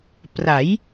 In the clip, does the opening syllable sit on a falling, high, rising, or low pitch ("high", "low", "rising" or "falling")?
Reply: rising